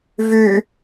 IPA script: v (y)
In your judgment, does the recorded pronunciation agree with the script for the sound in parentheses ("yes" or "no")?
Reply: yes